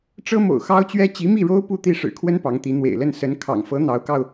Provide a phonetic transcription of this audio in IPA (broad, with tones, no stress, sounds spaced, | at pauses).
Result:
ʈ͡ʂ ɤ˥ m o̰˨˩ ʊ̯ x ɑ˥ ʊ̯ t͡ɕ ɥ ɛ˥ t͡ɕ i˧˥ m i˥˩ ɻ o˥ ʊ̯ p u˥˧ t̪ i˥˩ ʂ ɻ̩˨˩ kʰ w ə˥ n p ɑ˧˥ ŋ t̪ i˧˥ n̪ w ḛ˨˩ ɪ̯ l ə˥˩ n s ə˧˥ n kʰ ɑ̰˨˩ ŋ f ɤ˧˥ n̪ ɑ˧˥ ʊ̯ k ɑ˧ ʊ̯